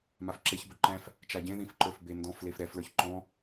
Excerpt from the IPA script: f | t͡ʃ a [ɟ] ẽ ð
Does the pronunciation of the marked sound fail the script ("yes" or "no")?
no